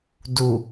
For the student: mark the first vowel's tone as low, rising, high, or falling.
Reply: low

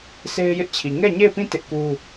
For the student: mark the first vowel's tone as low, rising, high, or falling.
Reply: high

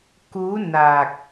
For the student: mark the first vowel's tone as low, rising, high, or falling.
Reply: rising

